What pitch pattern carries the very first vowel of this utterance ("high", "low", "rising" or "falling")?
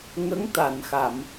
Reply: rising